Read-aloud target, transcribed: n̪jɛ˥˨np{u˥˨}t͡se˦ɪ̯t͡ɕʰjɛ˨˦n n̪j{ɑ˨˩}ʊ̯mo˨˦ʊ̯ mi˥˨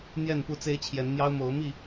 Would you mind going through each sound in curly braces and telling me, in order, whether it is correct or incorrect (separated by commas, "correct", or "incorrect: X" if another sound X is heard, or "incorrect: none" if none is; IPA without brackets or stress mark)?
correct, incorrect: ɑ˦